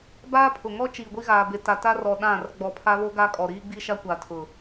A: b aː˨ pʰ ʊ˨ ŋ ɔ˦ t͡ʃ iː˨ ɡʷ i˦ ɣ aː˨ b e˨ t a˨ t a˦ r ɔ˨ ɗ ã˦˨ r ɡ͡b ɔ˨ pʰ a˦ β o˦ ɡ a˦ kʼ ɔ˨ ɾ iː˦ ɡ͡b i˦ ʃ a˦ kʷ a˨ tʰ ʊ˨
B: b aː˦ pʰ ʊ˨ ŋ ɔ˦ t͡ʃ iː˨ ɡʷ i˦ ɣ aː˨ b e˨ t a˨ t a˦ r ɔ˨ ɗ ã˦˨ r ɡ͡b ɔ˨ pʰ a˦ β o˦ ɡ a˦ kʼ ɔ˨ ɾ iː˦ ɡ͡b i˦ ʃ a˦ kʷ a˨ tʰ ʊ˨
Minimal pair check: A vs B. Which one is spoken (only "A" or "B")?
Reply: B